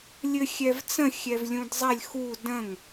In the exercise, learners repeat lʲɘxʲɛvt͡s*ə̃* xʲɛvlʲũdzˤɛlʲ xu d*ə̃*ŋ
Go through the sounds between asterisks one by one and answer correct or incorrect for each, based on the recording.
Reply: correct, correct

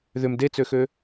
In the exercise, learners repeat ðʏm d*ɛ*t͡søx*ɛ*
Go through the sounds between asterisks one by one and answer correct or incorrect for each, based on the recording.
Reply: incorrect: e, incorrect: ø

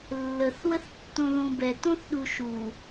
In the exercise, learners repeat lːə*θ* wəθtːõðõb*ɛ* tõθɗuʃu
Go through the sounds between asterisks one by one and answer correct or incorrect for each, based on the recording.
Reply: correct, correct

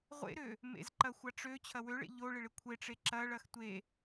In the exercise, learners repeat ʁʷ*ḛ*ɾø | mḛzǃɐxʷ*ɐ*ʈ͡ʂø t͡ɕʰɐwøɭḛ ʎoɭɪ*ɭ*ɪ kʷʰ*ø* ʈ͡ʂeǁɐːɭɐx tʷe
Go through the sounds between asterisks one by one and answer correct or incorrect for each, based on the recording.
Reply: correct, incorrect: a, correct, incorrect: e

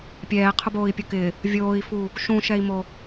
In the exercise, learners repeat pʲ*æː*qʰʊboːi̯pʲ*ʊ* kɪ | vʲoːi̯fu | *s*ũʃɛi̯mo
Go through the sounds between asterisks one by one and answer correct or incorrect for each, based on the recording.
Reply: incorrect: ɛː, correct, incorrect: ʃ

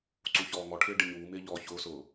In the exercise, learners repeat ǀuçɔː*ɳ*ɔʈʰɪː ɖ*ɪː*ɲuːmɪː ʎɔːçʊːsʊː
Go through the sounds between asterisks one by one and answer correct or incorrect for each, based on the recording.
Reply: incorrect: ŋ, incorrect: ɪ

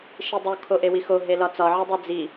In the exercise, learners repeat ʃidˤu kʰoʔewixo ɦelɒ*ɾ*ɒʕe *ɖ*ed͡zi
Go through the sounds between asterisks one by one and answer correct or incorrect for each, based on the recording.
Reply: incorrect: t͡s, incorrect: dˤ

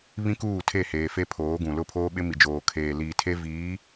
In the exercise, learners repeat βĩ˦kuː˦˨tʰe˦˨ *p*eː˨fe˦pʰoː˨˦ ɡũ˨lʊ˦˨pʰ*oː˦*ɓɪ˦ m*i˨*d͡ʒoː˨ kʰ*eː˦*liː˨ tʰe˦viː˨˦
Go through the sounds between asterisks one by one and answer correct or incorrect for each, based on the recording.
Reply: incorrect: h, correct, correct, incorrect: eː˨

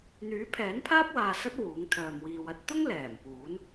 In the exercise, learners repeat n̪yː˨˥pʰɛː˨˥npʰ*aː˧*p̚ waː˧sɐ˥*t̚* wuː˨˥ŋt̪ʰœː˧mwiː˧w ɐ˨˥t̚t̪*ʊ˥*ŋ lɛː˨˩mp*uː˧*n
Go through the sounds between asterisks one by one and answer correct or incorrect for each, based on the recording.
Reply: incorrect: aː˥, correct, correct, incorrect: uː˨˥

